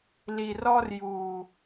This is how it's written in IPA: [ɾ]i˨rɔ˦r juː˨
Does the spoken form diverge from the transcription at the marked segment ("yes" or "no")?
yes